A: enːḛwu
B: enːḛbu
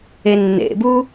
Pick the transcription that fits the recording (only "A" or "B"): B